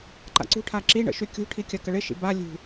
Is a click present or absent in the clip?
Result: present